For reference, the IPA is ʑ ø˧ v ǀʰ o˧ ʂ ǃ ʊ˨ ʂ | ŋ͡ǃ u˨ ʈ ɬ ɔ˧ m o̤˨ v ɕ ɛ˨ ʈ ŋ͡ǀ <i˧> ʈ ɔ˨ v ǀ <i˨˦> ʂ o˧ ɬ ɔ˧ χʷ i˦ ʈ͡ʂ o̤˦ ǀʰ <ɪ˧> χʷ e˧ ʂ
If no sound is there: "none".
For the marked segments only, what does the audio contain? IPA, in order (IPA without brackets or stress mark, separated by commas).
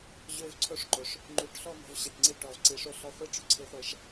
i˧, i˨˦, i˧